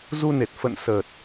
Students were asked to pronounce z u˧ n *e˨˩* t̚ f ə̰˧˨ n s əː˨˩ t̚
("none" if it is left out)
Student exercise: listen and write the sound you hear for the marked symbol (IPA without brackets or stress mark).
e˨˩